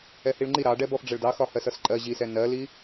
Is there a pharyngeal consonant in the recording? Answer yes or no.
no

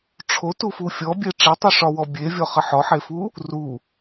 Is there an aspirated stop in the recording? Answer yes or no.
yes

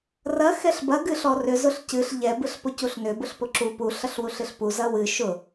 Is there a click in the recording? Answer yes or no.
yes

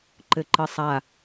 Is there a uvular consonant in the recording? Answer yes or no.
no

